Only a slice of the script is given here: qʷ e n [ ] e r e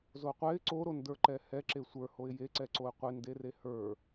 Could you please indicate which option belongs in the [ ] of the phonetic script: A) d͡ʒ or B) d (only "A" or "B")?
B